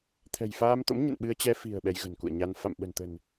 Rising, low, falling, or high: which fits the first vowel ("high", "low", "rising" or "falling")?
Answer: low